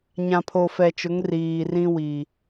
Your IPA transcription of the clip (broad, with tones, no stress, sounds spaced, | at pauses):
ɲ ã˨ pʰ o˨ f ɛ˨ t͡ʃ ʊ˨˦ ŋ r iː˨ r ĩ˦ w i˨